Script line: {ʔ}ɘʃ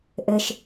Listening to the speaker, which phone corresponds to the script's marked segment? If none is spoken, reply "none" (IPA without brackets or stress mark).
ʔ